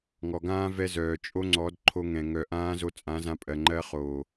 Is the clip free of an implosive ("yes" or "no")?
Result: yes